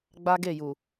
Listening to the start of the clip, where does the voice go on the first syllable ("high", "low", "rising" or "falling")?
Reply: high